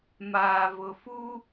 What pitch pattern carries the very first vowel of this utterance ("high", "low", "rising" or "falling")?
low